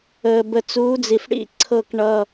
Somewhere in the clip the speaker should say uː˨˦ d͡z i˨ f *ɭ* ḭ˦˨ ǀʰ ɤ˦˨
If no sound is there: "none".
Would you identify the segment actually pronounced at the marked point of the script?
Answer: ɽ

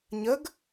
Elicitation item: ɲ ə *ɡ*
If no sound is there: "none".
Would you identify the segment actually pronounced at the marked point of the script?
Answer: ɡ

